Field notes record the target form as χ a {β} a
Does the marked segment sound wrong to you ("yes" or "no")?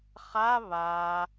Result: no